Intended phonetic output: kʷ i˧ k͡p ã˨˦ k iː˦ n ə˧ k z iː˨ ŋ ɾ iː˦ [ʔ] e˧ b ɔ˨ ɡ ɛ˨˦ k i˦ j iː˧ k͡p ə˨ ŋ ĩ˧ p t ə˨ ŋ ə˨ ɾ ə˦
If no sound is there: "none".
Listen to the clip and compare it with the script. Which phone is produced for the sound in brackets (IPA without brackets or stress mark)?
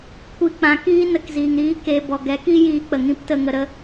k